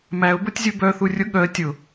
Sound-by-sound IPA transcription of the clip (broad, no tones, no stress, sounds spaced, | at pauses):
m æ ʊ̯ b o tʲ zʲ u b œ θ u rʲ ʊ ɠ œ ə̯ tʲ ʊ